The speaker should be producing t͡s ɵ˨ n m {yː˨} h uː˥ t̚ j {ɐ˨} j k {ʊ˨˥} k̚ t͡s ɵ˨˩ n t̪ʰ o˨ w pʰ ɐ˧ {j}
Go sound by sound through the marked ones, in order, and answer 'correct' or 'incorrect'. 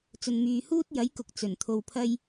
correct, incorrect: ɐ˨˥, correct, correct

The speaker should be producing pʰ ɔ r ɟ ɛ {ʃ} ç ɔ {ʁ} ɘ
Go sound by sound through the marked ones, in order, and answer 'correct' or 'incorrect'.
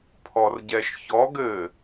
correct, incorrect: ɡ

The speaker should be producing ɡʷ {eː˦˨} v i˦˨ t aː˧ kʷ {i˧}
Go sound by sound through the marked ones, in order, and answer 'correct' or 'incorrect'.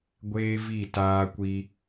incorrect: eː˦, correct

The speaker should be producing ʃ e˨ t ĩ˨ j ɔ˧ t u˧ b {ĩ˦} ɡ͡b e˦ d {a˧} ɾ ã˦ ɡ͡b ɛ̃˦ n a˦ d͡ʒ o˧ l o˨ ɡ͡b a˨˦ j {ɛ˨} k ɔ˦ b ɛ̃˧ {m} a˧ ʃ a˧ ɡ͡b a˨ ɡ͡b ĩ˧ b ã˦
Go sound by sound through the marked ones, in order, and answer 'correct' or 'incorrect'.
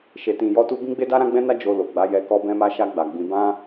correct, incorrect: a˦, incorrect: ɛ˧, correct

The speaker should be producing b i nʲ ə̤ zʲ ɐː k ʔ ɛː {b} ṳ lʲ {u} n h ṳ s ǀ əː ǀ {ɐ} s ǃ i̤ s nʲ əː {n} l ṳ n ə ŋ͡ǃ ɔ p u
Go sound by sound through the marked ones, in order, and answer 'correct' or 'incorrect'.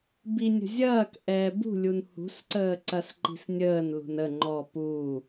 correct, correct, correct, correct

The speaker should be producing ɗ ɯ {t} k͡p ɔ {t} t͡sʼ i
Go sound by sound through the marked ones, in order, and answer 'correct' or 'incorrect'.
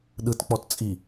correct, correct

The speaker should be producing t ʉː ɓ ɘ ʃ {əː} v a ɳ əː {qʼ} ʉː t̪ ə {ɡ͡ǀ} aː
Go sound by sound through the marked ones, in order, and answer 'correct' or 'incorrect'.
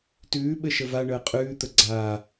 incorrect: ə, correct, correct

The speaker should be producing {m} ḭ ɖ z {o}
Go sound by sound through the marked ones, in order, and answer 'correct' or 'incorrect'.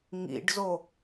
incorrect: ŋ, correct

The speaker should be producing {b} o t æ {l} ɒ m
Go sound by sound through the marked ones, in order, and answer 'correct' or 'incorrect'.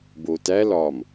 correct, correct

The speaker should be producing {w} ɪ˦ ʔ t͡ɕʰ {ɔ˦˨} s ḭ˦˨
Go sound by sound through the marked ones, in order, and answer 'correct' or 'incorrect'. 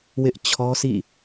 correct, incorrect: ɔ˦

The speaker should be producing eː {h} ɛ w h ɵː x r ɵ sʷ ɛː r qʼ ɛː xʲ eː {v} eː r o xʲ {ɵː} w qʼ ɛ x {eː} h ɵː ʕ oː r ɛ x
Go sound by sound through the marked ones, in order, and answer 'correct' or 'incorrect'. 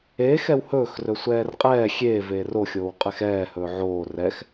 incorrect: x, correct, incorrect: oː, incorrect: ɛː

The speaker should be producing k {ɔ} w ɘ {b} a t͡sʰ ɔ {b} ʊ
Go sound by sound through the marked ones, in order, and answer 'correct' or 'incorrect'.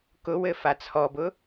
incorrect: ʊ, incorrect: f, correct

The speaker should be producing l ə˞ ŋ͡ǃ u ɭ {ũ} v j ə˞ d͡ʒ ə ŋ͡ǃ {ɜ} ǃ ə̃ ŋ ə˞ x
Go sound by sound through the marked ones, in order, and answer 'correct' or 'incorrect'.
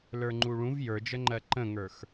correct, correct

